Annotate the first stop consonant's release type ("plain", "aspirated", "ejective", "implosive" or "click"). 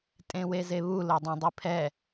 ejective